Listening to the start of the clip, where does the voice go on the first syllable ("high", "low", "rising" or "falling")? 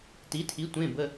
rising